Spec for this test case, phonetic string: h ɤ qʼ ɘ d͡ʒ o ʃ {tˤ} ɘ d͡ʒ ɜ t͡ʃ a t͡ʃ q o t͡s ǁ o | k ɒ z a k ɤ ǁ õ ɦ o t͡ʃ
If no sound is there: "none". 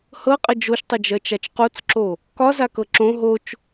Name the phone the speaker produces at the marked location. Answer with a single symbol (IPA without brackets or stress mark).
tˤ